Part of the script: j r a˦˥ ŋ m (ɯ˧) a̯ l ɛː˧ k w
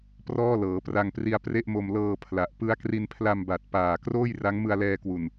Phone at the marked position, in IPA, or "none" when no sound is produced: ɯ˧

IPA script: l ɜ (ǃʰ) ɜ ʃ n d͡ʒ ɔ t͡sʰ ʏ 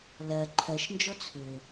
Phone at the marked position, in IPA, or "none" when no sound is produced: ǃʰ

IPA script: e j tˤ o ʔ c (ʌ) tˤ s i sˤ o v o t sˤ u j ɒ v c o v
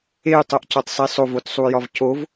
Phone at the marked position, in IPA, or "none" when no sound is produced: ɒ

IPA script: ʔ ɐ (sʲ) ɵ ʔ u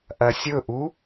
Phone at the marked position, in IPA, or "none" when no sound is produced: sʲ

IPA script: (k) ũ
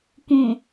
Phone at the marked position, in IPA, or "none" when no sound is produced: k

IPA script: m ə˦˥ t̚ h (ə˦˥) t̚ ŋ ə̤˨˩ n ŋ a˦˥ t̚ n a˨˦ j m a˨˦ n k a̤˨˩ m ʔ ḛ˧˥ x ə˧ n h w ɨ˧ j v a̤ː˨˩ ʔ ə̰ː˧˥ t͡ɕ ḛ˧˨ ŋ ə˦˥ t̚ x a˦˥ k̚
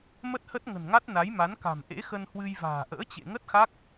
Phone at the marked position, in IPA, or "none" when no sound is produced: ə˦˥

